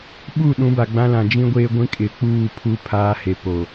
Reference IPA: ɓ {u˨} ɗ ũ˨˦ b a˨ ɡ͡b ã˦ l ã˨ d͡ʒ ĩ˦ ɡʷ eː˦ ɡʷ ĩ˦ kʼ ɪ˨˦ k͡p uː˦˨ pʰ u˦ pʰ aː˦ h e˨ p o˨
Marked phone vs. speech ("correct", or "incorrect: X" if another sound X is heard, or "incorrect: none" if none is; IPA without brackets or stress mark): incorrect: u˦˨